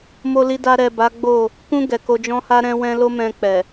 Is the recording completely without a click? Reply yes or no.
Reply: yes